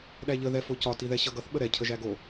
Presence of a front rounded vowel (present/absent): absent